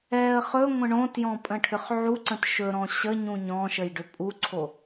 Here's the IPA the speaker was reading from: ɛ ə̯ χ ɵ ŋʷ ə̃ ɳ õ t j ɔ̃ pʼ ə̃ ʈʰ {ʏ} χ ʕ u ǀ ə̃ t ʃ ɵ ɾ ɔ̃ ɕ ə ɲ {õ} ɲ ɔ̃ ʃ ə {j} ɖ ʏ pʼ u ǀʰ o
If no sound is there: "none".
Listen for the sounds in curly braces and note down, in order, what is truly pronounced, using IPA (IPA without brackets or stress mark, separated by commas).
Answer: ʏ, ũ, j